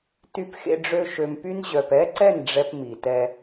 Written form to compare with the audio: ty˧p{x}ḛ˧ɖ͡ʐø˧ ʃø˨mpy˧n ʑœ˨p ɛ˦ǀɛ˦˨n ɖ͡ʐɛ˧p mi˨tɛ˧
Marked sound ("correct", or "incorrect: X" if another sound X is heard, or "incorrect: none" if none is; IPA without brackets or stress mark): correct